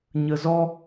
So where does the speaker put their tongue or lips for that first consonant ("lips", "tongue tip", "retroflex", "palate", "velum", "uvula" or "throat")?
palate